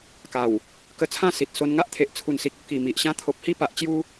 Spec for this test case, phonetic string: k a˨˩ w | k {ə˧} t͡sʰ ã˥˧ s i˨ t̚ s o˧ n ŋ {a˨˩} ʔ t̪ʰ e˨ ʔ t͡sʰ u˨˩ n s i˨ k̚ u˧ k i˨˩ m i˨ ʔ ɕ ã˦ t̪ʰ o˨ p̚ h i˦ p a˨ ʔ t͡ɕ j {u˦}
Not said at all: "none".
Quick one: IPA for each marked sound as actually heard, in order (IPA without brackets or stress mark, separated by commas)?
ə˧, a˦, u˦